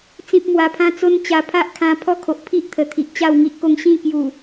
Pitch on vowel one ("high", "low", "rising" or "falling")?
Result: high